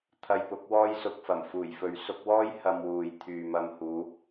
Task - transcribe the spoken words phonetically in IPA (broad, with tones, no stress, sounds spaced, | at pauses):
t̪ʰ ɐ˧ j p ʊ˨˥ k̚ w ɔː˥ j s ʊ˨ k̚ f ɐ˨˩ m f uː˨˩ j f ɵ˨ ɥ s ʊ˧ k̚ w ɔː˥ j h ɐ˧ m w uː˨ j t̪ʰ yː˨ m ɐ˧ m h uː˨˧